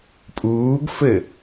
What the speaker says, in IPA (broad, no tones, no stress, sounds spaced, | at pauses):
pʼ uː ɡ f ɘ